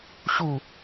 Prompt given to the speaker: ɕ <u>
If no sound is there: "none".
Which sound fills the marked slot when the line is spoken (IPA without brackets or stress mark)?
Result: u